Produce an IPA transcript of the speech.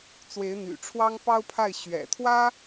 t͡s w e˧˥ ɪ̯ n̪ y̰˨˩ ʈ͡ʂʰ w ɑ˥ ŋ p ɑ˥ ʊ̯ pʰ a˥˩ ɪ̯ ɕ ɥ ɛ̰˨˩ t̪ʰ w ä˥

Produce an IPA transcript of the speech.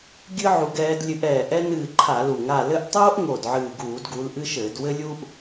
ɡʲ ɨ˥ ʕ u˨˦ ɡ ɛː˨˦ d lʲ ɨ˨˦ ʔ ɛː˨˩ ʔ ɛ˥ n ɨː˦˨ ǃʰ a˧˩˧ l u˨˩ ŋ a˦˨ l ɘ˥ ʔ tˤ oː˥ ʔ ŋ o˨˩ d ʕ ɨː˨˩ ɡ uː˧˩˧ d ɡ u˨˦ l ʔ ɨ˥ ʃ ɘː˧˩˧ d w ɘ˥ lʲ uː˥ ʔ

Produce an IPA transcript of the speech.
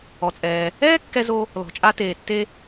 ɔ˩ t͡sʼ ɛː˩ | ɛː˥ kː ɛ˥ z o˥ | l ɔ̤˩ t͡ʃʼ a˥ t eː˩ tː e˥

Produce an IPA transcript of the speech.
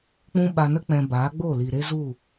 k͡p ũ˦ ɓ a˧ n ə˦ k͡p ɛ̃˧ b aː˨˦ ɡ͡b o˦˨ l i˨ ɾ e˦ z u˦˨

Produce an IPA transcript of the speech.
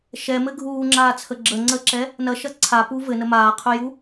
ʃ ɛ m ɘ ɡʱ uː ŋ͡ǁ aː t͡sʰ ə ɡ͡ǁ ə ŋ͡ǀ əː ǁ ɛ | n ɐ ʃ ɐ ǀʰ a p u v ɘ n ə m aː qʰ ɵ j u

